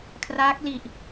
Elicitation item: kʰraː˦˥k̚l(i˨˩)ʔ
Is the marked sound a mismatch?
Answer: no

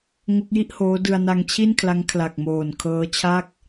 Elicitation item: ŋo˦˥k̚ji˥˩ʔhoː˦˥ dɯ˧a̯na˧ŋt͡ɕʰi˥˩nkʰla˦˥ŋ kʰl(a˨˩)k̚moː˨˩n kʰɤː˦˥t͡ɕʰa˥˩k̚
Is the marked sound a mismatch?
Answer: no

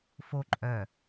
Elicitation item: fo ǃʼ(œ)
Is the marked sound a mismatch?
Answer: no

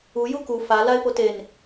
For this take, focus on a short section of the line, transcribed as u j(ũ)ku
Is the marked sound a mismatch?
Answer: yes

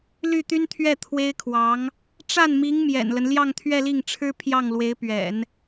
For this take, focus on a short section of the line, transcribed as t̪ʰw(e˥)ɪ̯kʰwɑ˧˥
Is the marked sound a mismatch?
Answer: no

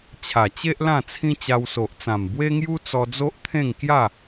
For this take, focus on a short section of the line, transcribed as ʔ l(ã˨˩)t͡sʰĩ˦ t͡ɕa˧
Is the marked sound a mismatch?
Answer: yes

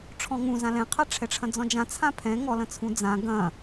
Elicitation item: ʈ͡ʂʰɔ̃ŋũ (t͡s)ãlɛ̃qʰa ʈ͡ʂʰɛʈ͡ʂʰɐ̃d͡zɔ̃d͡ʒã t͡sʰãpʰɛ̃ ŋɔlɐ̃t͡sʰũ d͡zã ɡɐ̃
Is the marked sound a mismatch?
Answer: yes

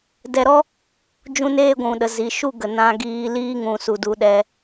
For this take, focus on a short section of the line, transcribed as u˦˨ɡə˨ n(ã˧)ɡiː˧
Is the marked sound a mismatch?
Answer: no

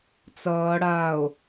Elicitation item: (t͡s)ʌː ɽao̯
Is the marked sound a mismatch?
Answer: no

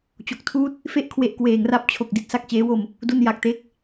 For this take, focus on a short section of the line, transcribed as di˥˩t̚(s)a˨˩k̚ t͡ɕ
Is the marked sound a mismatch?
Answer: no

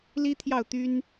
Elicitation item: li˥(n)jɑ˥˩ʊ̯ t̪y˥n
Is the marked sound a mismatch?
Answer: yes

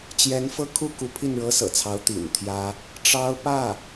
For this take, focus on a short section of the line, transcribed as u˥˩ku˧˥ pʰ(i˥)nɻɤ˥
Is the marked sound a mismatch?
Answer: yes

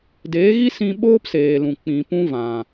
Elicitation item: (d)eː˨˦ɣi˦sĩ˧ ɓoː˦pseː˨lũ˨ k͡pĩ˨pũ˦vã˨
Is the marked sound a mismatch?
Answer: no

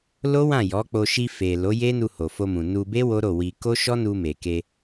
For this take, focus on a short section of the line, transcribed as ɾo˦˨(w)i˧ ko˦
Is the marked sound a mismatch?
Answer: no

